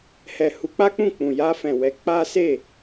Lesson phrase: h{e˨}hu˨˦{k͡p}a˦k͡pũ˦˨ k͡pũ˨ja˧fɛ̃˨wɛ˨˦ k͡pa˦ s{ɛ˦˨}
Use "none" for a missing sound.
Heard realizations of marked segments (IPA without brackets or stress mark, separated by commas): ɛ˨, k͡p, e˦˨